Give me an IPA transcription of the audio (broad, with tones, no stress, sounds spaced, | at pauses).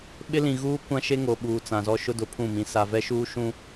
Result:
ɓ ɪ˦ l ĩ˨ ɣ uː˦ kʷ ã˦ ʃ e˦ ŋ o˨ ɓ uː˨ t͡s ã˨ z ɔ˦ ʃ ʊ˦ d ʊ˨ pʰ ũ˦˨ m ĩ˨ s a˨ v ɛ˦ ʃ uː˦ ʃ ũ˦